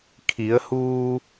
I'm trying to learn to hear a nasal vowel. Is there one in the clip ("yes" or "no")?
no